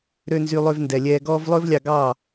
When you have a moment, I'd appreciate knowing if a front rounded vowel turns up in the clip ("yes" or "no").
yes